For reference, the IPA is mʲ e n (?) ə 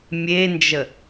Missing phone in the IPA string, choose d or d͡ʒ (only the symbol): d͡ʒ